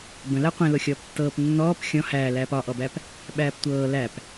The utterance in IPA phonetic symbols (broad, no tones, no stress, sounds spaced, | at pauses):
b ə̃ l æ qʷ ẽ l o xʲ ɔː p tː ɤː p nː ɔː p xʲ ɔ̃ h æː l æː p ɒ ʔ ɔ b æ p | ɓ æː p tʷ ɤː l æ p